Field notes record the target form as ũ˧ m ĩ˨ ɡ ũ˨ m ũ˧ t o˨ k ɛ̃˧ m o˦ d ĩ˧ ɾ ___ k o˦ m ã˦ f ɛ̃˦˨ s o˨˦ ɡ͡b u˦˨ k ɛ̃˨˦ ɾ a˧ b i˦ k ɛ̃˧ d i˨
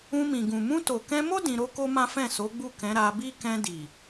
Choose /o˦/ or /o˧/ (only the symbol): o˦